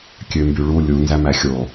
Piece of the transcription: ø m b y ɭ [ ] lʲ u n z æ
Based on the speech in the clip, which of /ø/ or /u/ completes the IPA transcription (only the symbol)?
u